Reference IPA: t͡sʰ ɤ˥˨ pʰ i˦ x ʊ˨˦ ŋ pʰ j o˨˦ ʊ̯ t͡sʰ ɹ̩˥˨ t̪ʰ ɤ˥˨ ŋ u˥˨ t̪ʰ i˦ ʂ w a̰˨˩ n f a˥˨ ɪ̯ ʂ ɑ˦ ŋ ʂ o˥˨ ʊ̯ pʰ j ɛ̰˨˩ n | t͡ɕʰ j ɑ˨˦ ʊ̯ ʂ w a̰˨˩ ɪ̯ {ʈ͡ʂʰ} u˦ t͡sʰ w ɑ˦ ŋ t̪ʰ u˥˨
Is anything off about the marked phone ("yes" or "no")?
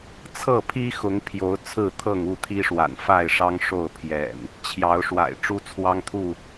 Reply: yes